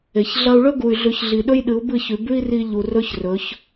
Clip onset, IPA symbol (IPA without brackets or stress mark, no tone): e